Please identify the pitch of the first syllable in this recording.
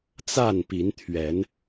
falling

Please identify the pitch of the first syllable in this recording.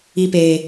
high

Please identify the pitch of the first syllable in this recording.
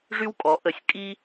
high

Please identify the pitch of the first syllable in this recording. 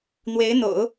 rising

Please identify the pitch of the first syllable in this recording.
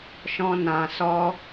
high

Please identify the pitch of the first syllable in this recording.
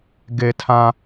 low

